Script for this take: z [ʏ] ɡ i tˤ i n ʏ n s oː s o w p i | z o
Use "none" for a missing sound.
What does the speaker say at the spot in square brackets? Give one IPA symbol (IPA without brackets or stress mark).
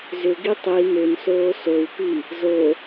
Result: ʏ